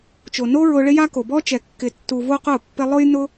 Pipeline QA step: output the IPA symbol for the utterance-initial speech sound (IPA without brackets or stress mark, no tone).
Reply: t͡ʃ